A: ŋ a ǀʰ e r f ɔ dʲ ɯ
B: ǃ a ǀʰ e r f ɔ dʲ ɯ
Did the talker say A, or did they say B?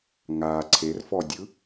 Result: A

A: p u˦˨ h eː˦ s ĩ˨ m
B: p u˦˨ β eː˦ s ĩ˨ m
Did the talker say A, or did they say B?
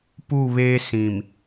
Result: B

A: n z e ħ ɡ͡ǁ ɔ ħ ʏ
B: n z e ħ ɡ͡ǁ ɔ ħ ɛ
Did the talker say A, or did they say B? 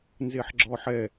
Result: B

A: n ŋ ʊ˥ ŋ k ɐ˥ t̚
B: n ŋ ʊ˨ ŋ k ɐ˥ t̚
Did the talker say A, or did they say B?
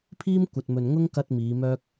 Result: A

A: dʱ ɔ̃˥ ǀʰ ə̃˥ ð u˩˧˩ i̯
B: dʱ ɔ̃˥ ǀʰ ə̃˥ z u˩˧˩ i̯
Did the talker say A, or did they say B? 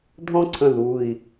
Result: A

